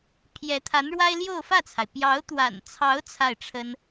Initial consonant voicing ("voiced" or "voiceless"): voiceless